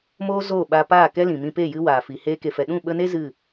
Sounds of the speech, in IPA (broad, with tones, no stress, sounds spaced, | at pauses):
m oː˧ z oː˦˨ ɓ a˧ p aː˦˨ k ɛ˦ l ĩ˨ m ĩ˧ p e˦˨ j ɨ˦ w aː˨ f i˨ h eː˧ k e˨ f ɛ˨ ɗ ũ˦˨ ɓ ə˧ n e˦ z ɨ˦˨